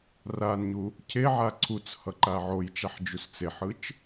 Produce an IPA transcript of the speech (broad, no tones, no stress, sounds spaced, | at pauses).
r a n ɲ u | cʰ e ʕ a ǀʰ u t͡s h ʌ ǃ a ʕ o j t͡ʃ a ħ d͡ʒ u s t͡s e ħ ɯ t͡ʃ